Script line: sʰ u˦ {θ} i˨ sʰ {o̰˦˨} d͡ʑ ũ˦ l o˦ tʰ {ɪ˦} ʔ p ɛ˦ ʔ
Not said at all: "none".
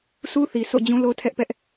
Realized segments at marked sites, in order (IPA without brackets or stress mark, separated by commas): θ, o̰˦˨, ɛ˦